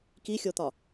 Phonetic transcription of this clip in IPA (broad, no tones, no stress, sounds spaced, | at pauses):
k i xʲ o t̪ ɒ